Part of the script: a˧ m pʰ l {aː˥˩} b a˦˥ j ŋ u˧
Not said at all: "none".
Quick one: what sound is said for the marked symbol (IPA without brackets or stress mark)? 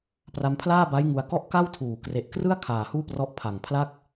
aː˥˩